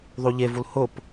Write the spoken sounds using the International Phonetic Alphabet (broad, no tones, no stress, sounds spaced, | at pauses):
ðˤ u ʎ e v u l h ʊ p